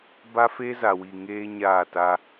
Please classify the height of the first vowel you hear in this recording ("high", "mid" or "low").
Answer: low